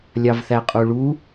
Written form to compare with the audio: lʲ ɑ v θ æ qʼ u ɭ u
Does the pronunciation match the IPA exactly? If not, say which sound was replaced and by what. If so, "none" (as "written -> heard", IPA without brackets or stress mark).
none